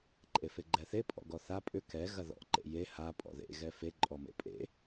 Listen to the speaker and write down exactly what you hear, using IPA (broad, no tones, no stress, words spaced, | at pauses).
ǃʼefeɡ͡ǃɛθe pʼɔ̰ɡɔθa pʼʏ kɛ ɣɐðɔ̰ ǃḛje ha pʼɔ̰ðḛ ɣɛfe ǃʼɔmḛpʼḛ